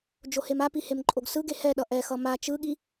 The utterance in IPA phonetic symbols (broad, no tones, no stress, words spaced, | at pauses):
d͡ʒohemapi hemǃʼoɡsɯɡe hɛɗʌ ʔɛxʌ ma t͡ʃɯɠi